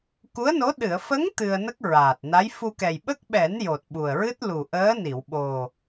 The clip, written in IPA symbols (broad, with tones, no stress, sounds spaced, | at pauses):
k u˧˥ ə̯ n o˧˥ ɗ ɨ˨˩˨ ə̯ f ə˧˥ ŋ t̪ ɨ˧ ə̯ n ə˦˥ k̚ ɹ aː˨˩ t̚ n a˧˥ j f u˧ k ɛ˨˩ j ɓ ə˦˥ k̚ ɓ ɛ˨˩˦ n j o˨˩ t̚ ɓ u˨˩ ə̯ ɹ ɨ˦˥ t̚ l u˨˩ ʔ əː˧˥ n i˨˩˨ w ɓ o˨˩